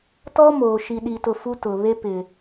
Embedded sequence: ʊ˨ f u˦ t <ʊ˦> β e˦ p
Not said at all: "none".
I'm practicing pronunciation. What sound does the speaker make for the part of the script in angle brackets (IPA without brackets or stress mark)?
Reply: ʊ˨